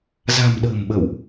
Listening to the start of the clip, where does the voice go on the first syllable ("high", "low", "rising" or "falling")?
low